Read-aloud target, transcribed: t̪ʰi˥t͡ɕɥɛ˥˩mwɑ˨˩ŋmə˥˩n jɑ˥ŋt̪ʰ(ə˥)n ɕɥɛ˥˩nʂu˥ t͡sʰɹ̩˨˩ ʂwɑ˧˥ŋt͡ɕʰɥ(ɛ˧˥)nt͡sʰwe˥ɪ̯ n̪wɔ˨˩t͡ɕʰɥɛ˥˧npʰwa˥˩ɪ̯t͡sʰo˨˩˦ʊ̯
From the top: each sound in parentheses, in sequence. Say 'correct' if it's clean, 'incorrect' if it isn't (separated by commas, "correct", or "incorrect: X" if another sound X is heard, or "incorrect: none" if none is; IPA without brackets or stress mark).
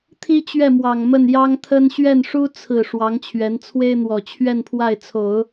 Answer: correct, correct